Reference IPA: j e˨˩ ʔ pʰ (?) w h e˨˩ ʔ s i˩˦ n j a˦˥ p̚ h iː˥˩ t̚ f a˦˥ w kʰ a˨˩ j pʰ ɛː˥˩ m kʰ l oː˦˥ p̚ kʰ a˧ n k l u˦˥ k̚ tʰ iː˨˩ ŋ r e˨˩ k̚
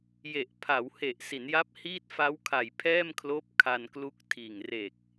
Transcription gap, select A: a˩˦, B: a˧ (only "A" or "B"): A